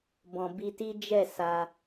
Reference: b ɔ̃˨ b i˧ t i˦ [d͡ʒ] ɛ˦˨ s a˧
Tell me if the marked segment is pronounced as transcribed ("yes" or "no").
yes